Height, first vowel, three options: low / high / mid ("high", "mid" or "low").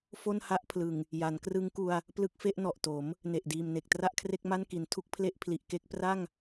mid